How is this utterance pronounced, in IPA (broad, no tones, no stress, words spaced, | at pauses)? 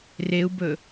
reu̯bɵ